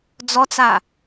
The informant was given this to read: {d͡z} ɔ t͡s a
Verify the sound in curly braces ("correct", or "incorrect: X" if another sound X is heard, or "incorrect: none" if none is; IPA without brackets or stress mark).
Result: correct